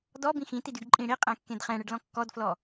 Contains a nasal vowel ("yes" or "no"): yes